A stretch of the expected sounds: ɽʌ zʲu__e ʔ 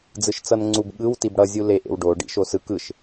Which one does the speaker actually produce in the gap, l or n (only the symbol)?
l